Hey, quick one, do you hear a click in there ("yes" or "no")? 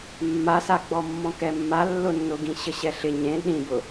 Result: no